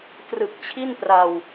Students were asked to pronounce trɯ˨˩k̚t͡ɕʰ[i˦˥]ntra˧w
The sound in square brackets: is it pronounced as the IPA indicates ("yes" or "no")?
no